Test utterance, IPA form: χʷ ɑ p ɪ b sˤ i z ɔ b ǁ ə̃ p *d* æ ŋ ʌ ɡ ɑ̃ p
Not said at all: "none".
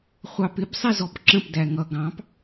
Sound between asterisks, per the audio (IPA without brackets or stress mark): d